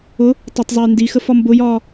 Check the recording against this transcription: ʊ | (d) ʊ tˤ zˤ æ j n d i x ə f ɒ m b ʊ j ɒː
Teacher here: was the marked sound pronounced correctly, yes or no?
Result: no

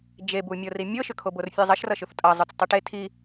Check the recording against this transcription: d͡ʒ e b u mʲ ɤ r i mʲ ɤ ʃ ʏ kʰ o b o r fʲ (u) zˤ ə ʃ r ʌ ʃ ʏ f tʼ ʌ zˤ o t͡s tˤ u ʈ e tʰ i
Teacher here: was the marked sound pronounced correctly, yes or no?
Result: no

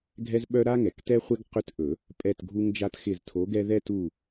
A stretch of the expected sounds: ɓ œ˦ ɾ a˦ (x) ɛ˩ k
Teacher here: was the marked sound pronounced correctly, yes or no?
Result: no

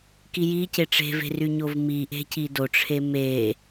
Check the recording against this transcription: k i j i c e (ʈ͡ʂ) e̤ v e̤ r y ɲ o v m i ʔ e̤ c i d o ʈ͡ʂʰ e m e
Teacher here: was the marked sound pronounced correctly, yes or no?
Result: yes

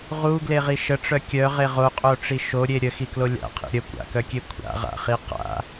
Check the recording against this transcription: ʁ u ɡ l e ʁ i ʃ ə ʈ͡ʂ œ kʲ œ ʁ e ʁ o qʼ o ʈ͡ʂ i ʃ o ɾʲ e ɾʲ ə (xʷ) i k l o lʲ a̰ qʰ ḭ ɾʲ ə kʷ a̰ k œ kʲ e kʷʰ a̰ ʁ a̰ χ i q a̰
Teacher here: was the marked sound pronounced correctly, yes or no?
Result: no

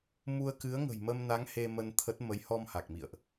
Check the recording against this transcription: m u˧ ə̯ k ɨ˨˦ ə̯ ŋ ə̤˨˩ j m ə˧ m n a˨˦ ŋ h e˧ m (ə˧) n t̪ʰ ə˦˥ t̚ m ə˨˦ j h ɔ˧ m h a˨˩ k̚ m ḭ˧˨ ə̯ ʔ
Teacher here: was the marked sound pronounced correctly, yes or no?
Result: yes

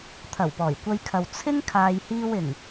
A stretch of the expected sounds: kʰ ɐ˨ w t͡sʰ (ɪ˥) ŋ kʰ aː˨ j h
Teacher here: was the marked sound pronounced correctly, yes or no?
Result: yes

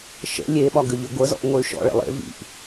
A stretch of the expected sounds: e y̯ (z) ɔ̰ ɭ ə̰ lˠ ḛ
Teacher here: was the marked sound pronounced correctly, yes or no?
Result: no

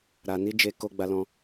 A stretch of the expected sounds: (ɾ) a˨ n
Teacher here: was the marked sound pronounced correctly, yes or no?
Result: yes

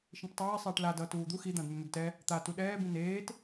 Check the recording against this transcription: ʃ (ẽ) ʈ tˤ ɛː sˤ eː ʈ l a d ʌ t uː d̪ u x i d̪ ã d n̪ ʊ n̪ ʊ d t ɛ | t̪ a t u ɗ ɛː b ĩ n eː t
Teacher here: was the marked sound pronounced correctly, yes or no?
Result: no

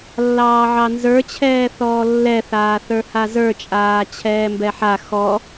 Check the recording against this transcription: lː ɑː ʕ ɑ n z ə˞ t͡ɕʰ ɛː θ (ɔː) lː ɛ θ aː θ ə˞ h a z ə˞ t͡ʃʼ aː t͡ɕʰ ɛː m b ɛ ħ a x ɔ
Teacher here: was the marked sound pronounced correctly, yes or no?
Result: yes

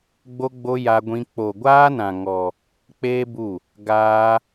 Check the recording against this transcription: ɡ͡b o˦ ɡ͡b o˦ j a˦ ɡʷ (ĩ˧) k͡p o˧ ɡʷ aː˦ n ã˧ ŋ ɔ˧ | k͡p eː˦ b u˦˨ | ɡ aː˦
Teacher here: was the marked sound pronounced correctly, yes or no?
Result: no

